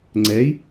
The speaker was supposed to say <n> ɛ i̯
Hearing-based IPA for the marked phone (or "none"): ŋ͡ǀ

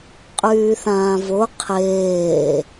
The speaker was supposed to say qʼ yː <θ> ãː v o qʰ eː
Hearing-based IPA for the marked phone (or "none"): θ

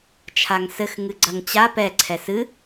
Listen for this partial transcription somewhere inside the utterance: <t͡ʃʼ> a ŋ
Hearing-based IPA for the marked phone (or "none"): t͡ʃʰ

